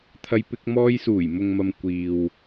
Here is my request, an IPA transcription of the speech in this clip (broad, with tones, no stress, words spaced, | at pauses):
t̪ʰɐ˧jpɪ˧k̚ mɔː˧jsuː˨˩jmʊ˨ŋmɐ˨m kʷiː˨w